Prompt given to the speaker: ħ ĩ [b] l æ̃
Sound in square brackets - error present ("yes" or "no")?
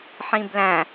no